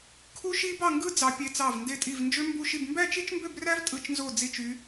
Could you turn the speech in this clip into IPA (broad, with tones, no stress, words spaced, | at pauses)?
kʰu˦˥ʃi˦˥bɑ˥˧ŋɡɯ˦˥ d͡zɑ˦˥pʲe˦˥t͡sɑ˥˧v nde˥˧tʼi˥˧v nd͡ʒø˦˥mbu˥˧ʃi˥˧b mbæ˥˧t͡ʃi˦˥t͡ʃmbø˥˧bræ˦˥v tʼɯ˦˥t͡ʃnzo˥˧ d͡zi˥˧t͡ʃy˦˥